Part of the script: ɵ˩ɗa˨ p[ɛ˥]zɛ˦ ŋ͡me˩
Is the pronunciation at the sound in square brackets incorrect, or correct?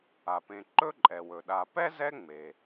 correct